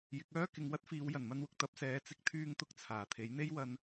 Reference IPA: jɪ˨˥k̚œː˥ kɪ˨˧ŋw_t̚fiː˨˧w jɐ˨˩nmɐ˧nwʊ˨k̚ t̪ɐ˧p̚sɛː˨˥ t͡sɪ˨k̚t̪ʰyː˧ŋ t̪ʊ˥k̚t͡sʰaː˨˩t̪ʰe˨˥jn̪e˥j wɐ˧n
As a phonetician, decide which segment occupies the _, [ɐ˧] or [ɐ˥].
ɐ˥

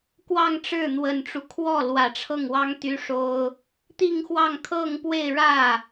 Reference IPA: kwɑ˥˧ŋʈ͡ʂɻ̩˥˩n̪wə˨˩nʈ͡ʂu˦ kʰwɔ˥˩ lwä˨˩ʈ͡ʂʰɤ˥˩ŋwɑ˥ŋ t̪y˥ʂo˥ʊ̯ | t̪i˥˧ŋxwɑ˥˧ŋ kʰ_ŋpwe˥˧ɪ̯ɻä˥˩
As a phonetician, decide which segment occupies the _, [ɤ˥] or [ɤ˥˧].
ɤ˥˧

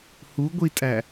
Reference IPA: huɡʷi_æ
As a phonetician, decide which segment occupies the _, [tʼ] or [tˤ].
tʼ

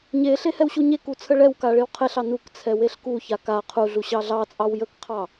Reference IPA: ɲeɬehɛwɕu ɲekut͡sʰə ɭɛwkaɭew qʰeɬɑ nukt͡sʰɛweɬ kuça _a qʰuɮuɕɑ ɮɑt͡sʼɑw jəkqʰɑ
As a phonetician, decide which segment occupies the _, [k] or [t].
k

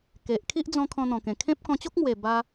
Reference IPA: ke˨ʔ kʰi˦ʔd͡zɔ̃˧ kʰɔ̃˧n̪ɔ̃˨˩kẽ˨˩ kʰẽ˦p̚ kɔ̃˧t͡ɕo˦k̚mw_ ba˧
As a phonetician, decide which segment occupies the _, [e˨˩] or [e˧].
e˨˩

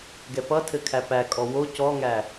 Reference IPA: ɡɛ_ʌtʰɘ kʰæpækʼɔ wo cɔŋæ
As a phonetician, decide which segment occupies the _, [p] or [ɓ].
p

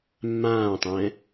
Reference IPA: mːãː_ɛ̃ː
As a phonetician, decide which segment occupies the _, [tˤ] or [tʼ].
tˤ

